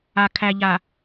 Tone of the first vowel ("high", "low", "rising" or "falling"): low